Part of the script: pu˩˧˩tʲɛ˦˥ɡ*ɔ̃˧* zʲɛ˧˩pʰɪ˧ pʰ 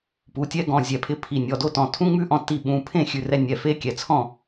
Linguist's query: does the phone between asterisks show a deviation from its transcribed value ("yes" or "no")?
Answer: yes